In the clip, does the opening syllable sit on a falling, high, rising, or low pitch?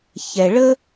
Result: low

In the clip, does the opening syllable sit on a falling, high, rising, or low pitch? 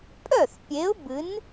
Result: falling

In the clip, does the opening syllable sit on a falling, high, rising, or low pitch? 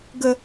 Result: high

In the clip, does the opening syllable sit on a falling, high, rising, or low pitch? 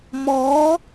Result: rising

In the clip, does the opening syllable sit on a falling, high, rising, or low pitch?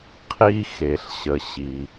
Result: high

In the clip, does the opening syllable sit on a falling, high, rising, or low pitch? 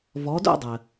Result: rising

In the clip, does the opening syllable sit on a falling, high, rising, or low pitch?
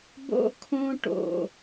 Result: high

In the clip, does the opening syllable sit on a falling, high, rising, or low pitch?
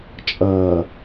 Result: low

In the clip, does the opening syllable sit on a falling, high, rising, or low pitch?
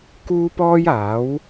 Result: high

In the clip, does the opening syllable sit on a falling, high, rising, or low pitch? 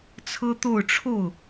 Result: high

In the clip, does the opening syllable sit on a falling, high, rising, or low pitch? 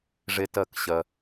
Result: high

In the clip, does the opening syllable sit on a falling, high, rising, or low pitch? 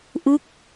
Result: falling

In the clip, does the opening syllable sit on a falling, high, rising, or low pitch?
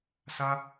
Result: high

